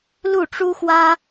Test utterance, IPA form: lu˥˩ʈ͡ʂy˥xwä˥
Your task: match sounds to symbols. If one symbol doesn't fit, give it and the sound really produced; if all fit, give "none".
y˥ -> u˥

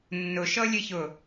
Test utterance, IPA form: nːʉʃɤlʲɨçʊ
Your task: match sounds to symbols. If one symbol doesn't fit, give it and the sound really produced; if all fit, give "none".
ʉ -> ʊ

